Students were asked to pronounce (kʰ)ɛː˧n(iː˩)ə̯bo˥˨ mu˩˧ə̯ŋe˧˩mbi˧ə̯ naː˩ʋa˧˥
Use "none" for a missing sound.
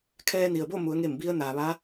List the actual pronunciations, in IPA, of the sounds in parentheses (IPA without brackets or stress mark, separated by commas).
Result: kʰ, i˩